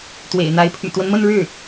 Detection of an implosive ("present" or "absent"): absent